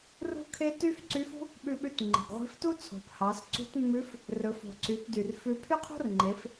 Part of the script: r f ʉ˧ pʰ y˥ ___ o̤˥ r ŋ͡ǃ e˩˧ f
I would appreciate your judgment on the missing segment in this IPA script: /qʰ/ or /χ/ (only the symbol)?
qʰ